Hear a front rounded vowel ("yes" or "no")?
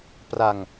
no